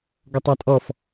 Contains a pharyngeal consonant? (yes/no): no